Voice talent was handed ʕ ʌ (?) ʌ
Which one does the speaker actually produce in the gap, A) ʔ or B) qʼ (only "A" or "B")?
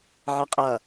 B